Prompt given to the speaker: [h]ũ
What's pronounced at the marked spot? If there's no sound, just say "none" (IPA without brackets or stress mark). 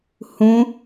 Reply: h